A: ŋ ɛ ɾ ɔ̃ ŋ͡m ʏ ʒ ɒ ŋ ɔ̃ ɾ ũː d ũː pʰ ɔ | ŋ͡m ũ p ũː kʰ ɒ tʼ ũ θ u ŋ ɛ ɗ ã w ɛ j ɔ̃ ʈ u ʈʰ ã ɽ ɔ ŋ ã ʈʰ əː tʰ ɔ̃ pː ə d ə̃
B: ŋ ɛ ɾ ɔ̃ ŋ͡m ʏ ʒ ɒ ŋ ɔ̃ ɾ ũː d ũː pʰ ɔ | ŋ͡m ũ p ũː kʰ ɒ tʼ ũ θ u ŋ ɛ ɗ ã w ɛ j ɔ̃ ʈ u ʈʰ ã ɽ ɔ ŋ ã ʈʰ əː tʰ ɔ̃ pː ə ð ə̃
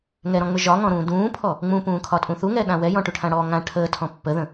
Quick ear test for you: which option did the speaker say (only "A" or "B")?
B